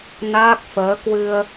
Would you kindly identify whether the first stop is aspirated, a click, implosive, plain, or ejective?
plain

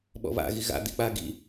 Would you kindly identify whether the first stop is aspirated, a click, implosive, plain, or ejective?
implosive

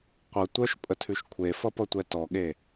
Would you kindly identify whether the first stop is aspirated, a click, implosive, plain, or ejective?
plain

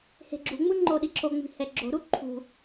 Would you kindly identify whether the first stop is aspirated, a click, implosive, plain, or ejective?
click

